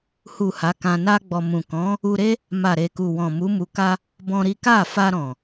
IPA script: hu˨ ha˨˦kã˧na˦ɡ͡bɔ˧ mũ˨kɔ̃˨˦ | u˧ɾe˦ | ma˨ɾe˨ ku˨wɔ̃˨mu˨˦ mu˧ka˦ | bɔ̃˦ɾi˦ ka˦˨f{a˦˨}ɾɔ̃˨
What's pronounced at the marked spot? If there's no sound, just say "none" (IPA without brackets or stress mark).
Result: a˧